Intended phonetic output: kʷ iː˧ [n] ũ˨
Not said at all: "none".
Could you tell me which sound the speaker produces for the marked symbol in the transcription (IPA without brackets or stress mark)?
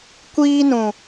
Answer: n